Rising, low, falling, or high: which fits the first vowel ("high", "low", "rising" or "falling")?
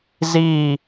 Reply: falling